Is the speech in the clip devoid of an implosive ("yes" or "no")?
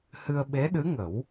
no